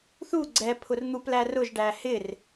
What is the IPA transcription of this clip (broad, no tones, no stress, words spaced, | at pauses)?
θu ɡ͡ǀɛ pʰʊrn̪uplæ rʊʒɖæ hɪr